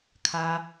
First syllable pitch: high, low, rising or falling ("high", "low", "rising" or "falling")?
low